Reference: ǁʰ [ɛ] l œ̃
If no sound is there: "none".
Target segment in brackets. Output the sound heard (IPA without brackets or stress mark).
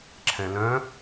ɛ̃